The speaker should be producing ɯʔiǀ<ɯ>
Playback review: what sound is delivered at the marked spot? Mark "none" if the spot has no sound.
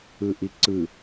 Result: ɯ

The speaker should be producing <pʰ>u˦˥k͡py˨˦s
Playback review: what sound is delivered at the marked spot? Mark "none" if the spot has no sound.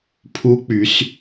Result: pʰ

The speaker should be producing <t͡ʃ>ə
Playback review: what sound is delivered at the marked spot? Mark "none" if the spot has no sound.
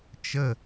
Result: t͡ʃ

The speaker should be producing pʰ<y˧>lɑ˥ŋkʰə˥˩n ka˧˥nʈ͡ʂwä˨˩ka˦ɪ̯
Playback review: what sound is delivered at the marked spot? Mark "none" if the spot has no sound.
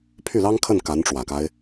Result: y˥˩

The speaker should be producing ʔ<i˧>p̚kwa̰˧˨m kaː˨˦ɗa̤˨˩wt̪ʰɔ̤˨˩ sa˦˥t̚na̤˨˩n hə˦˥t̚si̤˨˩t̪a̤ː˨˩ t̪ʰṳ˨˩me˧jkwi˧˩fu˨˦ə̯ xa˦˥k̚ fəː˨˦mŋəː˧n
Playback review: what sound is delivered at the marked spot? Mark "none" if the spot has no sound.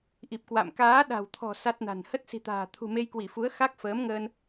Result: i˨˩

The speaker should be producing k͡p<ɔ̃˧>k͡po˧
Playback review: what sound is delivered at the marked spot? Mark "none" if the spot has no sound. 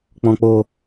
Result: ɔ̃˧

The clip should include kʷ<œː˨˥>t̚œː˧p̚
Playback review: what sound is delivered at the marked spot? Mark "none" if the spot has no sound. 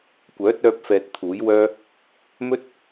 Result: œː˨˥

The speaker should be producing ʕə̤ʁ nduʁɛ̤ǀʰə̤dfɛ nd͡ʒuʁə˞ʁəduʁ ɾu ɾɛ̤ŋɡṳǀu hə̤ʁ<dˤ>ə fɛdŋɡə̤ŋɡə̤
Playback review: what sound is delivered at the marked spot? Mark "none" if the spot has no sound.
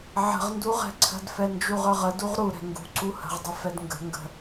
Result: dˤ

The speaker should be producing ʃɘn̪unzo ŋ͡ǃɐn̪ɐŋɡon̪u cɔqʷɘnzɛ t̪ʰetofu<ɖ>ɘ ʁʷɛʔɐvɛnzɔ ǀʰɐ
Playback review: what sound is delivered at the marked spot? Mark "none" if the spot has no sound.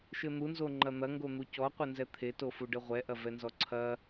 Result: ɖ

